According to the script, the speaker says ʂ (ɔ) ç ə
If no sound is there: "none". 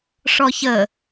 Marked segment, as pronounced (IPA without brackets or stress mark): ɔ